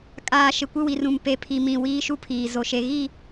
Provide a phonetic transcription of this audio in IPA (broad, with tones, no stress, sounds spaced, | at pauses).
kʼ aː˨ ʃ ɪ˨ kʷ ɪ˦ w i˨ r ũ˨ m p e˨ pʰ i˨ m ĩ˨ w iː˦ ʃ u˦ pʰ iː˨ z o˨ ʃ e˨ ɣ i˦˨